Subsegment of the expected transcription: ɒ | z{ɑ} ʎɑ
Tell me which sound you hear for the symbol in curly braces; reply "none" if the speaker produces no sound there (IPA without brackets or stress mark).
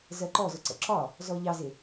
ɔ